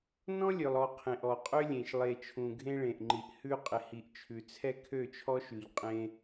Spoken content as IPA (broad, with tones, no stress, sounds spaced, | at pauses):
n ɔ̃˦ lʲ ø˨ lˠ ɔ˨ qʰ ẽ˨ ʔ ɔ˨ qʼ ø˦ lʲ ẽ˨ ʃ lˠ e˨ t͡ʃʰ ũ˨ ɡʱ ẽ˦ ɭ ẽ˨ ʔ ŋ͡ǃ i˨ ʔ h ʉ˦ qʼ ɪ˨ h i˨ ʔ t͡ʃʰ ʉ˨ t͡sʰ ɛ˦ kʰ ø˦˨ t͡ʃʰ ɔ˦ ʃ ʉ˨ ʎ qʼ ẽ˦